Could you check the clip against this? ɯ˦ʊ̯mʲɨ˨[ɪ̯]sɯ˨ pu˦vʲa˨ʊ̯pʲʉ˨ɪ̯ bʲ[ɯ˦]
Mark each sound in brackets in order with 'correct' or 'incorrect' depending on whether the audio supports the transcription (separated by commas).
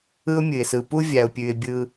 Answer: correct, correct